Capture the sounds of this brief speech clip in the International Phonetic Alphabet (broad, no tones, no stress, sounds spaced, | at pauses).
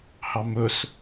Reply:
h ɑ m ɵ s